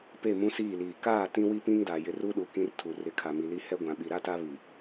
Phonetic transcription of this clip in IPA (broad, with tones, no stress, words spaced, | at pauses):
pe˦˨mũ˦siː˦˨liː˨ kaː˦˨ tĩ˦wi˦pĩ˦ŋda˨ jɪ˨r u˦ɗu˨ kĩ˦rtʰu˨ rɪ˨˦kʰa˨mi˨li˦ hɛ˦ɡʷã˨ɓi˨ ɾa˦ta˦ βi˨